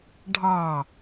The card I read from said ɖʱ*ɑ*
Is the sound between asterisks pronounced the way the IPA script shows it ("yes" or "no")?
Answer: yes